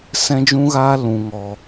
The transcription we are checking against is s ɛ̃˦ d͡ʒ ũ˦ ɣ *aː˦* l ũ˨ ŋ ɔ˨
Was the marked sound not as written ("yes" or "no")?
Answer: no